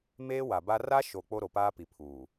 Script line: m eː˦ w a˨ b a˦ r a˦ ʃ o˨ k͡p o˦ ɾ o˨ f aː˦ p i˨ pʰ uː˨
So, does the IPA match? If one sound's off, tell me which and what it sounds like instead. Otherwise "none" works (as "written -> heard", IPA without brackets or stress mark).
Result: f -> p